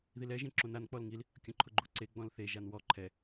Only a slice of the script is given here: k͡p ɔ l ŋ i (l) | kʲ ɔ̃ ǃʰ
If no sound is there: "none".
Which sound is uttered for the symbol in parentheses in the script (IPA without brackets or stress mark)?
l